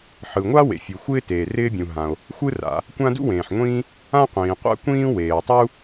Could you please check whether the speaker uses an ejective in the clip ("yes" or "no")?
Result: no